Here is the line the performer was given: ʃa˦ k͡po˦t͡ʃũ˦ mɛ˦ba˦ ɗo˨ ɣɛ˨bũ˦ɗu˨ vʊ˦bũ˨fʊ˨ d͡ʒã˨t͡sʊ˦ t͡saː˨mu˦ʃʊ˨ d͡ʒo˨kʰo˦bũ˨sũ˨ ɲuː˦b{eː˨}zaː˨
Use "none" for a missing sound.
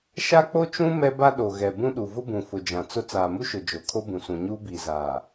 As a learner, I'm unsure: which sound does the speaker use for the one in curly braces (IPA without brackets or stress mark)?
iː˨